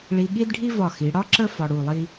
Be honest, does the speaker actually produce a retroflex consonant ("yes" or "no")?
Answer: yes